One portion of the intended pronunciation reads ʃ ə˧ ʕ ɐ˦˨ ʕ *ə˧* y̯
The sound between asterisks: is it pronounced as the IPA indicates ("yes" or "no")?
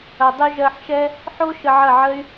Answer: no